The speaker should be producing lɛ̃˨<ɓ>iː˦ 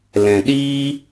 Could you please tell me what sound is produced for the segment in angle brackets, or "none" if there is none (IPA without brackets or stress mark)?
ɗ